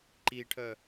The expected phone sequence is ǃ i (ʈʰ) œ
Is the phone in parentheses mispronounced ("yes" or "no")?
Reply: no